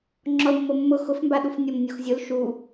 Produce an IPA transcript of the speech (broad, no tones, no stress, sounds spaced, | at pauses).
ŋ͡ǁ ɔ l mː o mː ʊ x ʊ f m b a ɗ u f nʲ o m nʲ o x zʲ ʊ l ʃ u